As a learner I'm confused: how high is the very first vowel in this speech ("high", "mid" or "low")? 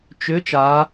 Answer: high